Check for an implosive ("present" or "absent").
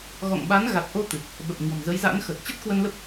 present